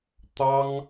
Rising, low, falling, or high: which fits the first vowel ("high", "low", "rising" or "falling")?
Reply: high